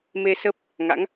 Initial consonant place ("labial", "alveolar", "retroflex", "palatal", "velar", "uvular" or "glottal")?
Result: labial